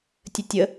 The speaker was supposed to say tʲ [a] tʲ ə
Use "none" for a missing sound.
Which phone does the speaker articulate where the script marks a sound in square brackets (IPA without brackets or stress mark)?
ə